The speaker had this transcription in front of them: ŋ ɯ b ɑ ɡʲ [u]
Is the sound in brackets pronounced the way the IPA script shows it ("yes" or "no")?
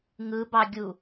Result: yes